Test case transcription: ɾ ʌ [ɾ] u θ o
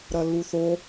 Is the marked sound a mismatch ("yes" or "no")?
yes